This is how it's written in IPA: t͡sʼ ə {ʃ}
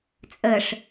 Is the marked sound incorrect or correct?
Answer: incorrect